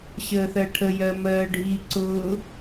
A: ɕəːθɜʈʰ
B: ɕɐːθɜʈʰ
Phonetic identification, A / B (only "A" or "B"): A